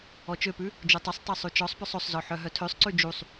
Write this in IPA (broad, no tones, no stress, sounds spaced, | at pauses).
ɔ t͡ʃ ø p ʉ | d͡ʒ ɵ tˤ ɵ sˤ tˤ ø sˤ ʉ t͡ʃ ɔ sˤ p œ sˤ ɵ sˤ z ɔ ħ œ ɦ œ tʰ ø sˤ ǀ ʉ d͡ʒ u sˤ